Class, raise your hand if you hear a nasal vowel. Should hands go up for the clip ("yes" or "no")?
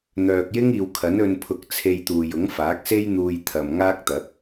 no